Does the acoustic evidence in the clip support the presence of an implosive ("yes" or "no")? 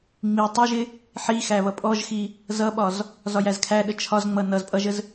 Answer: yes